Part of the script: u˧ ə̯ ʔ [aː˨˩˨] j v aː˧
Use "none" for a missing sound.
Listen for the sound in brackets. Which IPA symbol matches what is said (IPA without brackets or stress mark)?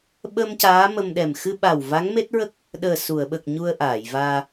aː˨˩˨